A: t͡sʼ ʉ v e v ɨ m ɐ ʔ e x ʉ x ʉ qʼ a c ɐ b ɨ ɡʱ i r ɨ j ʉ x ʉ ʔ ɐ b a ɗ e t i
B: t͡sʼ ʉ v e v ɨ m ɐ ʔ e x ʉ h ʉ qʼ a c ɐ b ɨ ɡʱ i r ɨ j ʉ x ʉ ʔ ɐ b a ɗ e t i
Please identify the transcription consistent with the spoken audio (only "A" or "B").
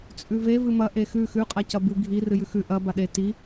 A